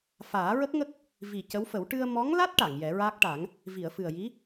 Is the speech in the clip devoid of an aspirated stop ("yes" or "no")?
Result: yes